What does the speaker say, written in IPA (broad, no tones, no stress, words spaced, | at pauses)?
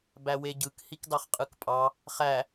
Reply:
bæweɟɯk hikdɑχqʼɯkpʼɑ | χæ